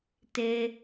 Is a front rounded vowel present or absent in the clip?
absent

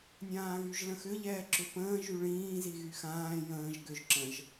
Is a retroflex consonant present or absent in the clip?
present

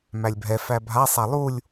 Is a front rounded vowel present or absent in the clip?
absent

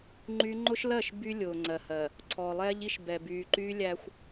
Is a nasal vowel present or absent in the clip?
absent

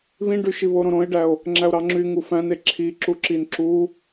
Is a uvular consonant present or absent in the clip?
absent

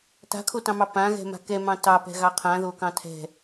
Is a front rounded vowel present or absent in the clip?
absent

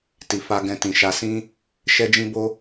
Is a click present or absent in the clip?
absent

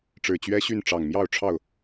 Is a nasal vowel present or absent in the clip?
absent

